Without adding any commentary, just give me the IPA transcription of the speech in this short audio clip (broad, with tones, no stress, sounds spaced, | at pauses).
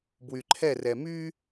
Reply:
b w y˨ ǃʰ ɛ˦˨ r ɛ˨ m y˥